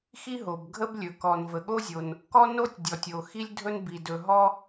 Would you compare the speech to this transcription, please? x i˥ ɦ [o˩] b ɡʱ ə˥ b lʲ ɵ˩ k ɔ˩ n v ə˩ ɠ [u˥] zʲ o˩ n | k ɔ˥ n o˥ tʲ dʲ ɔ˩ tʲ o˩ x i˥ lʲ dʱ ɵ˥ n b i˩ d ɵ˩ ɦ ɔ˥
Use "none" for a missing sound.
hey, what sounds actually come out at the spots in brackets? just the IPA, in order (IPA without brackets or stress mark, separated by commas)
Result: o˩, o˥